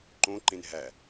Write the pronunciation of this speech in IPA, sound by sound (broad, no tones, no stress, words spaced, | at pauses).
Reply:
ǃõǃẽn ɦæ